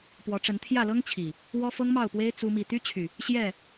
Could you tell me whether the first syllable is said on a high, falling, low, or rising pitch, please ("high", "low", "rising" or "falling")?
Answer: rising